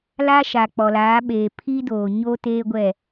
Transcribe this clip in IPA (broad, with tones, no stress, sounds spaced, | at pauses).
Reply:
l a˦ ʃ a˨ k͡p ɔ˨ l aː˨˦ ɓ eː˨ pʰ i˦ d oː˨ ɲ o˦ t eː˦ ɡʷ ɛ˦˨